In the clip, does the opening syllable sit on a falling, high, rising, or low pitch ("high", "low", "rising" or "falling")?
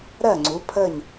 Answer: falling